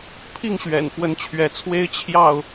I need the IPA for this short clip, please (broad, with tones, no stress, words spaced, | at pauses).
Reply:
pʰi˥˨ŋɕɥɛ̰˨˩nfwə˨˦n t͡ɕʰɥɛ˨˦t͡sʰwe˦ɪ̯ t͡ɕʰjɑ˥˨ʊ̯